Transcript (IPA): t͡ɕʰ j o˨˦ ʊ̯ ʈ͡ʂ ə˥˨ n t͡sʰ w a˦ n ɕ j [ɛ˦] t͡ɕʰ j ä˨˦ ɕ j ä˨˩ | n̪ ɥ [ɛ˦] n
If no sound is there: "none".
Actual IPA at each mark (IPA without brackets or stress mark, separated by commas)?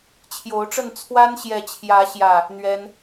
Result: ɛ˨˦, ɛ˦